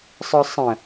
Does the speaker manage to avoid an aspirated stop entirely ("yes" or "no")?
yes